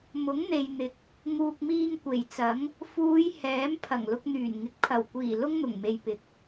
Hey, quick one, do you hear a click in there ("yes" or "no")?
no